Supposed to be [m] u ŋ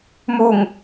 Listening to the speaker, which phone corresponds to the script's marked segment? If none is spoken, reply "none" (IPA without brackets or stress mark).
m